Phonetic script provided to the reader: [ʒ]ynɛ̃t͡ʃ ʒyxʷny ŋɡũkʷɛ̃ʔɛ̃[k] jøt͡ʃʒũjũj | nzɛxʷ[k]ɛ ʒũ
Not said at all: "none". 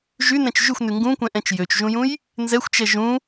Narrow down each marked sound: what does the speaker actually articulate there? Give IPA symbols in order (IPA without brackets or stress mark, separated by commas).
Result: ʒ, t͡ʃ, t͡ʃ